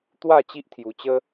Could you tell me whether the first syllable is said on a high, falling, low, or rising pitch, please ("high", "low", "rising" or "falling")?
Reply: falling